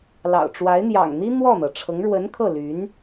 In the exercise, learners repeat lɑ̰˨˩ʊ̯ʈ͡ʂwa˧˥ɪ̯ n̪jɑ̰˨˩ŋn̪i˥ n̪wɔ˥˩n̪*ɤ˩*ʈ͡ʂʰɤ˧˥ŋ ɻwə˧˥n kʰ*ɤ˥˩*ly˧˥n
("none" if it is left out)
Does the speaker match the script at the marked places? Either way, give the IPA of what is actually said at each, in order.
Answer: ɤ˩, ɤ˥˩

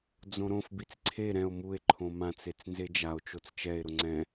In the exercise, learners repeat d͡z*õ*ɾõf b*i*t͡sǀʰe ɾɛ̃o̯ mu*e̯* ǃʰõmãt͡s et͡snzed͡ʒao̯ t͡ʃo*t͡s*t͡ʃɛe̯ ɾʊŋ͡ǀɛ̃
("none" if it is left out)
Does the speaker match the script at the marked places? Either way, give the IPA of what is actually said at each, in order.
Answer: õ, i, e̯, t͡s

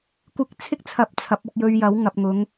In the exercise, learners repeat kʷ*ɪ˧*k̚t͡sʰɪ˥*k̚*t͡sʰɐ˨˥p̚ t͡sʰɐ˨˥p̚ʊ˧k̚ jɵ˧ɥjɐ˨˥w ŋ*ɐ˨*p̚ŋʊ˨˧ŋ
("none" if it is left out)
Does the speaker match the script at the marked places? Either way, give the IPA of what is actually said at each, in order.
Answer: ɪ˧, k̚, ɐ˨

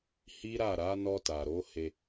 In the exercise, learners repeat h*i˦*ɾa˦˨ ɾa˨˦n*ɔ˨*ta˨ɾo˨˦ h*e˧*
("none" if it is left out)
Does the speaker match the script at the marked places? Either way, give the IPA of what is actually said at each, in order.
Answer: i˦, ɔ˧, e˧

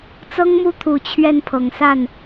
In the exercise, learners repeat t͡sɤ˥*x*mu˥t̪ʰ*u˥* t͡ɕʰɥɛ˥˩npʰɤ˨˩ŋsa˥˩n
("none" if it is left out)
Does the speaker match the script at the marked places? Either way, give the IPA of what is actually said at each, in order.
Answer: ŋ, u˨˩

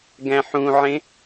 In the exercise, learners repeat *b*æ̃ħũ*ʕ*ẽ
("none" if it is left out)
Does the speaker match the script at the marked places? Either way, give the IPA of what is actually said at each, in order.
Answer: ɡ, ʕ

